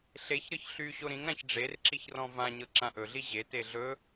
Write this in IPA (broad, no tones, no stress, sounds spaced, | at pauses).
ɬ e ç ɾ ɤ ç ɬ y ɕ o ɾ ĩ ŋ ɾ ã ç ɖ͡ʐ e r ǁ i ç r ɔ̃ v ã ɲ ɤ ǁ ã ʔ ɵ ɮ i ʑ e t e ɮ ɵ